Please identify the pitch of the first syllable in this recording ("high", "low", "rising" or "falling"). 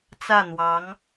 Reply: falling